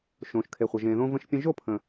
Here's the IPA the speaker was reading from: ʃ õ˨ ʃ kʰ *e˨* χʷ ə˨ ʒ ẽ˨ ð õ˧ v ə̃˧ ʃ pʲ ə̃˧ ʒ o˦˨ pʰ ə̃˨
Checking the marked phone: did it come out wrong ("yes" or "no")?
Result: no